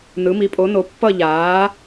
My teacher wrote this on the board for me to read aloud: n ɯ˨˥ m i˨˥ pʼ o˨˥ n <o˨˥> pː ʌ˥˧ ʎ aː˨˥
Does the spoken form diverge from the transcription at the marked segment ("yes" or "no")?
no